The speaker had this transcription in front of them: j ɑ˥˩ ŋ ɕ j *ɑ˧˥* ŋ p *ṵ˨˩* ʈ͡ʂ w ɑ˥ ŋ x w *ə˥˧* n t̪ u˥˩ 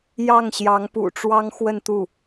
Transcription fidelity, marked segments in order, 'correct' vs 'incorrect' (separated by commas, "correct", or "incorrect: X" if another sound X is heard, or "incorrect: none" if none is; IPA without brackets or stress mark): correct, correct, correct